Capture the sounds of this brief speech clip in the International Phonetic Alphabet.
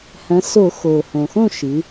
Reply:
h ɐ̃˩˧ s o˧˩˧ x oː˩ h õ˩ x õ˥˨ ʃ ɨ˩˧

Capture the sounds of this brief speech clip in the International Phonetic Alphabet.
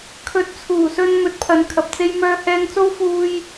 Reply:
kʰ ɵ˨˥ t̚ t͡sʰ uː˨˩ s ɵ˧ n m ɵ˨˥ t̚ pʰ ɐ˨˥ n kʰ ɐ˨ p̚ t͡s e˥ j m œː˧ h ɛː˧ ŋ t͡s o˥ w f uː˥ j

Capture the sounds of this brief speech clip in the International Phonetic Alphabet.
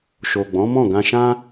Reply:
ʃ o˨ ɡ͡b ɔ̃˨˦ m ɔ̃˦˨ ɡ ã˧ ʃ ã˦

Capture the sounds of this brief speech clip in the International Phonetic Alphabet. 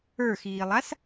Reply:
ə˞ x iː lˠ a s

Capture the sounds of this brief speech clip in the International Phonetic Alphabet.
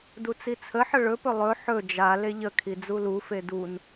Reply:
d u t͡s i t͡sʰ ə ħ ə ɭ ɵ p ɵ lˠ ɵ ħ ɵ d͡ʒ a l e ʎ ə kʰ i d͡z u l u f e d u n

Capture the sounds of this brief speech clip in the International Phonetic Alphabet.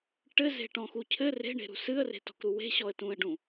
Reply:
ʈ ɘ z e̤ ʈ ɔ̃ x u cʰ ɘ r e̤ ɳ e̤ ɾ ṳ s ɨ ə̯ r e̤ t ɔ̤ k ɾ u w e̤ ɕ ɔ ə̯ t ũ ə̯ ɖ ũ

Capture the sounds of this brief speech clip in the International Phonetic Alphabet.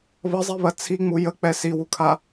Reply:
β ə zˤ i β ɐ t͡sʰ i ŋ͡m u j ə k͡p ɛ s i w u kʰ a

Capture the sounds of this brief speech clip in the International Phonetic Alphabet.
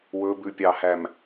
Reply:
w ɵ b ʉ pʲ ɑ h æ m

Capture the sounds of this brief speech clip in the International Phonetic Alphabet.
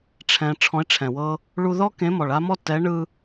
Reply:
ʈ͡ʂʰ ɛ̃˩ ʈ͡ʂʰ ɔ̃˨˥ ɪ̯ ʈ͡ʂʰ ɛ̃˩ w ɤ˦ | ɭ u˦ ð ɔ˦ k ẽ˨˥ m ɔ˩ ɭ a˦ m ɔ˦ t ɛ˨˥ ɳ ɯ˦

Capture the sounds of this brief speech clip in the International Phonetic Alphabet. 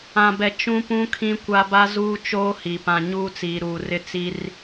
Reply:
ã˨ b ɛ˨ t͡ʃ ũ˦ p ũ˦ kʰ ĩ˦ kʷ a˦ b a˦ z uː˦ t͡ʃ oː˦ h i˨ p ã˨ ɲ uː˦ t͡s iː˨ ɾ uː˨ r ɪ˦˨ t͡s i˦ r

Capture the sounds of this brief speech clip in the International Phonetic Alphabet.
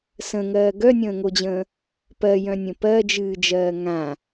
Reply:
s ə̃ ŋ ɜː ɡ œ nʲ ə̃ː ŋ o d͡ʑ ə̃ː | p ɜ j œ̃ nʲ ə̃ p ɜ d͡ʒ ɨː d͡ʒ ɜː ŋ ã

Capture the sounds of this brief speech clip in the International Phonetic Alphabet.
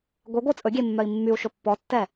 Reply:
ɡʷ e ɡʷ ɯ t͡sʼ ɵ ɡʲ e mː œ i̯ mː y u̯ ʃ ɵ pː ɔ tː ɛ

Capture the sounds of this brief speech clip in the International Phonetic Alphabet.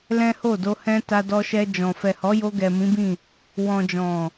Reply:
l ɛ̃˦ h o˦˨ d o˧ h ɛ̃˦ t a˧ d ɔ˧ ʃ ɛ˧ d͡ʒ ɔ̃˨ f ɛ˨ h ɔ˨˦ j o˧ ɡ ɛ˨ m ĩ˨˦ b ĩ˦˨ | w ɔ̃˨ d͡ʒ ɔ̃˨

